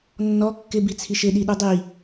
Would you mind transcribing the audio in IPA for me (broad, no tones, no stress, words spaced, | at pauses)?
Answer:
nːɔ kːɪ bit͡sʰiʃɪ ɗiɗudˤi